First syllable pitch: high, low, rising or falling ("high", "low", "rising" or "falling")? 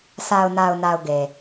low